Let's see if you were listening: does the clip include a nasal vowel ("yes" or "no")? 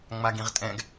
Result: yes